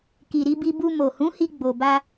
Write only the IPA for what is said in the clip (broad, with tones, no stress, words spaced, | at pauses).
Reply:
ki˨ɾi˧bi˧ bu˧ mo˨hũ˨˦hi˧ ɡ͡bo˨ba˧